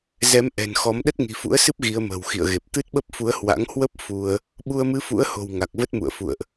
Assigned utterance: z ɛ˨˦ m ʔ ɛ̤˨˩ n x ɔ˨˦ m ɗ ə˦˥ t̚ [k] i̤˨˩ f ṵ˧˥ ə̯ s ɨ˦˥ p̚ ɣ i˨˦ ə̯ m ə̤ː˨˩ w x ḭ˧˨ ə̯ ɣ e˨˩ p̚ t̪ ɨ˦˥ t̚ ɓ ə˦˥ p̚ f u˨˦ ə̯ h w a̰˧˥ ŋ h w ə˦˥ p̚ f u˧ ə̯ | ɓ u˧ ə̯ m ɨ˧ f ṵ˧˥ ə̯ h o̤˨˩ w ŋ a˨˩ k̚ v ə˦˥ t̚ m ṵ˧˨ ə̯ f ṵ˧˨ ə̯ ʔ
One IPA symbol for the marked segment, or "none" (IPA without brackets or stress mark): ŋ